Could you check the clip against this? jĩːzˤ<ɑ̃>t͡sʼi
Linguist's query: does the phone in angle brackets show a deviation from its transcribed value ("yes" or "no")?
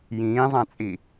yes